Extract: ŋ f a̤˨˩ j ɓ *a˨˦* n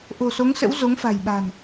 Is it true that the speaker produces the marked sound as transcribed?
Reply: no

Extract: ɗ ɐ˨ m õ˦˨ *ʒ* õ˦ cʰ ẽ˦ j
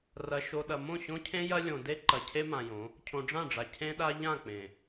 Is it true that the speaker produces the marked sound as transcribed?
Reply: no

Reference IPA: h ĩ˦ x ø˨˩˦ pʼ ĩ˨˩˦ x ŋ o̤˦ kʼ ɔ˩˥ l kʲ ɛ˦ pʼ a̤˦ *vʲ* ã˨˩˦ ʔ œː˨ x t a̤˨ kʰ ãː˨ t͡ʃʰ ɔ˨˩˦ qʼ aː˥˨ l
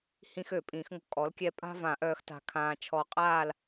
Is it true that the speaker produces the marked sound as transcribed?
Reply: no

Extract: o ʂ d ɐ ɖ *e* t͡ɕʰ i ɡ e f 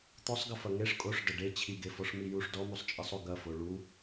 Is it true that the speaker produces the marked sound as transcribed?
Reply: yes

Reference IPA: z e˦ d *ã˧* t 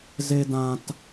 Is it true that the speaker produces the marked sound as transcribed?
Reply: yes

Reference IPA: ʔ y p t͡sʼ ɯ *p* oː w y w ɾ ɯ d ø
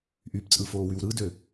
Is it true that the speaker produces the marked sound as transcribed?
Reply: no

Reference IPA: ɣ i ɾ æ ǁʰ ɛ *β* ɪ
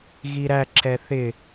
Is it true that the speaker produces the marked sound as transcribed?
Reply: no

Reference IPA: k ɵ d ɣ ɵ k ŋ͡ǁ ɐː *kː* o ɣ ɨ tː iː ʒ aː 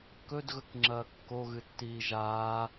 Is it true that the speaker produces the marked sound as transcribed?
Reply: yes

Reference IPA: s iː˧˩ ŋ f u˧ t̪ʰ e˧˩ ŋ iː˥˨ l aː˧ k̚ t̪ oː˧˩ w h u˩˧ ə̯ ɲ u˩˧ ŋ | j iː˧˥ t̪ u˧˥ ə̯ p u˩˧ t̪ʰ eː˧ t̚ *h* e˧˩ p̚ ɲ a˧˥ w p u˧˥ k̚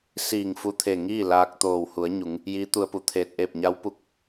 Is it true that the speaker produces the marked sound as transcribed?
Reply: no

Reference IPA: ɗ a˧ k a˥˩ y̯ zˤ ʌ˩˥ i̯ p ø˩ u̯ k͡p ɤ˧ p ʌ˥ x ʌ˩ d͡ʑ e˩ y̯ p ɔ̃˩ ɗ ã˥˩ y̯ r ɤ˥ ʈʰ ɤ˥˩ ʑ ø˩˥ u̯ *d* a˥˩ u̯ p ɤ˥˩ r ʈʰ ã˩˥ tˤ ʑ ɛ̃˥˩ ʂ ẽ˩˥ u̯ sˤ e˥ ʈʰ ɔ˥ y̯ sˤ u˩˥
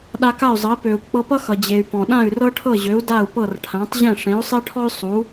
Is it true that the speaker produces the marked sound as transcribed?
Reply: yes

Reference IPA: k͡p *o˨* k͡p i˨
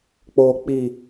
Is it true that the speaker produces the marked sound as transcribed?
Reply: yes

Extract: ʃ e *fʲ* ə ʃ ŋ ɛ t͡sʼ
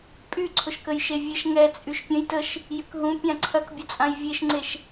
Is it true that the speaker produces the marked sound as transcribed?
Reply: no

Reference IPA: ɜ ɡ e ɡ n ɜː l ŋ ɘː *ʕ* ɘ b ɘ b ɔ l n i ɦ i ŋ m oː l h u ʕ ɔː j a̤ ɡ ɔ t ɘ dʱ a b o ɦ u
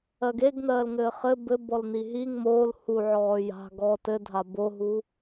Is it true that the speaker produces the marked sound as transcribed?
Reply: no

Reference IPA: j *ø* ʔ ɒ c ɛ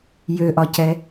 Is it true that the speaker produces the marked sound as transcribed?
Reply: yes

